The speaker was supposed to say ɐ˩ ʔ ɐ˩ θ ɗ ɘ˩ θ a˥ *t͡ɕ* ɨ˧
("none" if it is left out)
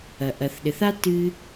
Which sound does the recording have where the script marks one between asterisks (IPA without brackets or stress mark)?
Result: t